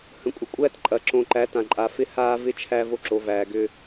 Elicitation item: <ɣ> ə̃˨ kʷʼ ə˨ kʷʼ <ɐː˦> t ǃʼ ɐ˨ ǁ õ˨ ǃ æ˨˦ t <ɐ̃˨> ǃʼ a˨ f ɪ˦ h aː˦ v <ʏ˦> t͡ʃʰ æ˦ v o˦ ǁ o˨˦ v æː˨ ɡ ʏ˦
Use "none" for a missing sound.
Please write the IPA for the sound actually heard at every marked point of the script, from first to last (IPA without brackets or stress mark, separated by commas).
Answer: h, æː˦, ã˨, ɪ˦